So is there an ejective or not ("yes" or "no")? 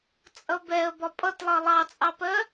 yes